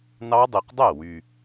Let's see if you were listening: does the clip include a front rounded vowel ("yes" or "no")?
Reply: yes